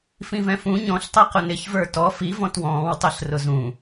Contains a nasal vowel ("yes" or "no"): yes